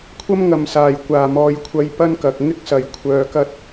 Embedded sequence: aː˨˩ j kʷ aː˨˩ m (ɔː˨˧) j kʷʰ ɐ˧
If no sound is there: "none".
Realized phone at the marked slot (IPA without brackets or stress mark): ɔː˨˧